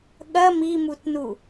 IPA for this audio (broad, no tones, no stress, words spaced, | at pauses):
ɠɐ mimutnu